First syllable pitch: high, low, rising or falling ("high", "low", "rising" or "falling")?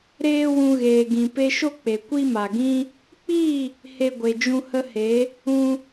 high